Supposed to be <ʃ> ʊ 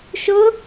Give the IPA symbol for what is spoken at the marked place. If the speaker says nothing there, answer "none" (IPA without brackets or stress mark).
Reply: ʃ